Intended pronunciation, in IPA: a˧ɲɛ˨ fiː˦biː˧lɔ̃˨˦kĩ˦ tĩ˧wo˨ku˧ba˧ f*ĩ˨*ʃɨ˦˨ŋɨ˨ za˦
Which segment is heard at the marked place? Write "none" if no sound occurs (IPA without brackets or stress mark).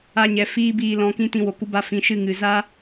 ĩ˨